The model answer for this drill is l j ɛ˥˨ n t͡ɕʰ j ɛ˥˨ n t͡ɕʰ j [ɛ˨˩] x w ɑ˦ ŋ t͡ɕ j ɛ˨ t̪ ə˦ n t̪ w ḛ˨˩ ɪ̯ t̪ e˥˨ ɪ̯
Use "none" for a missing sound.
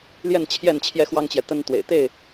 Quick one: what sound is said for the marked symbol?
ɛ˦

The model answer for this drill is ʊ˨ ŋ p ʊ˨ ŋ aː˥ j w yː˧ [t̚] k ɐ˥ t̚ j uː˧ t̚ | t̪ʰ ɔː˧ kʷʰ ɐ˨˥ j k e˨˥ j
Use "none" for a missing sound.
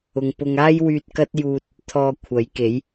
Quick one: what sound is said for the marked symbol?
t̚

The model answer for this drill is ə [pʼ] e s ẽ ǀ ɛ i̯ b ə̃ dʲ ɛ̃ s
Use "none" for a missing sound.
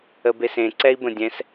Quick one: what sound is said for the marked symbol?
b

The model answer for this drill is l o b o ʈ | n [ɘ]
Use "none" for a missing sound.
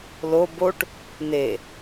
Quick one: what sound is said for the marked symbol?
e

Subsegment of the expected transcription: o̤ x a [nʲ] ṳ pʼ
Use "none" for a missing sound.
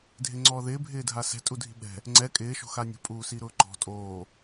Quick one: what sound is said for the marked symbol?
nʲ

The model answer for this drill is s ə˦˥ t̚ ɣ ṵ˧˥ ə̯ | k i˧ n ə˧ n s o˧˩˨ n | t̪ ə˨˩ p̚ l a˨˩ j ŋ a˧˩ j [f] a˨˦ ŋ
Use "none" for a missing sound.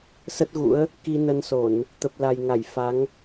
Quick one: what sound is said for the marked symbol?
f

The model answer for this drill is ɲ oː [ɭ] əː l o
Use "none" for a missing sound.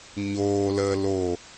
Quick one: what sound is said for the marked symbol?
l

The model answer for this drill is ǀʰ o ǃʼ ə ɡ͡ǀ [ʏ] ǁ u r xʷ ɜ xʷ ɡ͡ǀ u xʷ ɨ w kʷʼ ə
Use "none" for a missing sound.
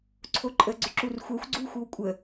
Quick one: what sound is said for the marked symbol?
ʏ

